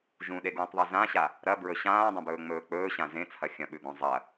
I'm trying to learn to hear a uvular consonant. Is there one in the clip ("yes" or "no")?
no